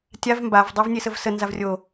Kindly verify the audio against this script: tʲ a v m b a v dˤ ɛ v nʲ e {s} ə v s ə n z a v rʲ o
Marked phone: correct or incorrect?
correct